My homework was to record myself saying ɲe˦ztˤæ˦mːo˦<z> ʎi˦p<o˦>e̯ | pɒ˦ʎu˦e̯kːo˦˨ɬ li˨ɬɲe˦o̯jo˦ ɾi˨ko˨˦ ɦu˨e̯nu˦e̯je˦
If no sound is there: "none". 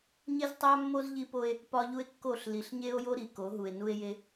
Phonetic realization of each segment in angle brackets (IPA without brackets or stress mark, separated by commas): z, o˦